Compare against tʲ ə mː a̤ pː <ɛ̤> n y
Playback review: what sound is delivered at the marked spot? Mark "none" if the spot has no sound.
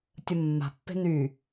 e̤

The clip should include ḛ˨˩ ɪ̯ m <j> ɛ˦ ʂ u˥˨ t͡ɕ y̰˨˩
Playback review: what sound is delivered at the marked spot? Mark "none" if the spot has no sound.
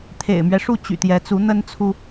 ɥ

